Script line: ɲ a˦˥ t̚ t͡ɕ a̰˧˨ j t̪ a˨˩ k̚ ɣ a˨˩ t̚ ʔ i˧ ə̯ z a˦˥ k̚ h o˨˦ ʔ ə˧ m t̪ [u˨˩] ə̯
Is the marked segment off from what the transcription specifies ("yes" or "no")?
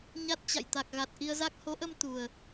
no